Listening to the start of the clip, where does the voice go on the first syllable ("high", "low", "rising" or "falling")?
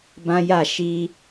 high